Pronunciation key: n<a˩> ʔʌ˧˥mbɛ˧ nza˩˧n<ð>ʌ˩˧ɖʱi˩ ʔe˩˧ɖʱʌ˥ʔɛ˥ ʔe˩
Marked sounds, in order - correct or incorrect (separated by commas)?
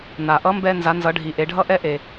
correct, incorrect